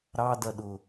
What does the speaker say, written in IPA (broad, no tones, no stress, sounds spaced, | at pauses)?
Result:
ɾ ɑ d ɐ ɗ ʊ